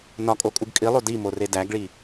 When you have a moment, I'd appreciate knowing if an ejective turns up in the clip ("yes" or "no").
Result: yes